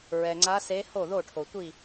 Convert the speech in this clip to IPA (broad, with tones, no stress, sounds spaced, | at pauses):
ɹ ɛ˩ ŋ͡ǀ a˧˥ s e˧˥ h o˥˩ ð o˥˩ ʈʰ o˩ tʷ i˥˩